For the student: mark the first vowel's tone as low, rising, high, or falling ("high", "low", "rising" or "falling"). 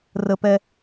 high